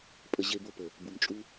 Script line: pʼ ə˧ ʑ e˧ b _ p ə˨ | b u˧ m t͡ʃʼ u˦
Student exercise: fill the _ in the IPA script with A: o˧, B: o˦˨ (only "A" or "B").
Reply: A